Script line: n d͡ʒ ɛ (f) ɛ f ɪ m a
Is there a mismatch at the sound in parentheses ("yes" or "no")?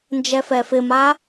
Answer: no